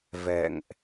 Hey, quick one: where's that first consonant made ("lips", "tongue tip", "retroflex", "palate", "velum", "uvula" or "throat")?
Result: lips